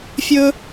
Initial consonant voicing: voiceless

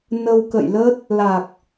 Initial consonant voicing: voiced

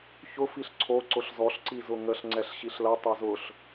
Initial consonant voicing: voiceless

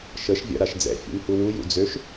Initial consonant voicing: voiceless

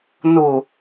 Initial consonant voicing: voiced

